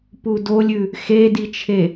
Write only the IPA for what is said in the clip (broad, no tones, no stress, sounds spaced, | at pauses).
p u d o lʲ ʉ | x e d i t͡ʃʰ e